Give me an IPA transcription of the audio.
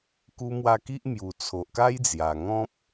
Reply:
k u˧ m w a˧ k i˦ ʔ m j u˨˩ t͡sʰ o˨ ʔ k a˦ j d͡z j a˨˩ ŋ ɔ̃˦ p̚

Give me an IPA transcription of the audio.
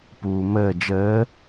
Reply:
p uː m əː d͡ʒ əː

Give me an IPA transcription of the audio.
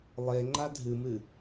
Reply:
lˠ e ŋ͡ǃ a dʱ ɨ m ɨ

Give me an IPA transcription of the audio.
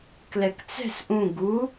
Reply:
k l ɛ k t͡s ɛ̤ s ʔ ũ ɡ u

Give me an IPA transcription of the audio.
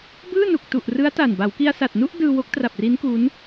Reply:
b ɯː˥˩ n u˨˩ k̚ t u˨˩ ʔ r ɯ˦˥ a̯ t a˨˩ n b a˩˦ w k i˧ a̯ s a˨˩ t̚ n u˥˩ ʔ d ɯː˧ w o˦˥ k̚ t r a˨˩ p̚ r i˦˥ n k u˦˥ n

